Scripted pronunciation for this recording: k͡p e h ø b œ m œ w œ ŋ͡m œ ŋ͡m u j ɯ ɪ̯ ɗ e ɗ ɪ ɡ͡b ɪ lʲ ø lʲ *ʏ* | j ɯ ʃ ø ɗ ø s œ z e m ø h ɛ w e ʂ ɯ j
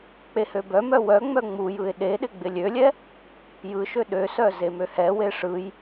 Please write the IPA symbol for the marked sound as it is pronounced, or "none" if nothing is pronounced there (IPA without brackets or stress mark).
ɛ